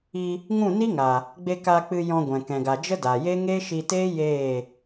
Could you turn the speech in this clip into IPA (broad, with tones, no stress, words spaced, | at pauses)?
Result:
i˧ | ŋũ˦˨ni˦ŋa˨ | ɡ͡be˧ ka˧k͡pɨ˧ jɔ̃˧ɡʷɛ̃˨ kɛ̃˨ɡa˨ d͡ʒə˦da˨je˦ ŋe˦ʃi˧teː˦ jeː˦˨